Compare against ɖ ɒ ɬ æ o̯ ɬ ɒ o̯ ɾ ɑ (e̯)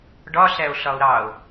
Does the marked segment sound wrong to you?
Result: yes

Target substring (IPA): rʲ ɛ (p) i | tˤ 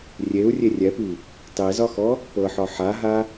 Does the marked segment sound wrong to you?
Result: no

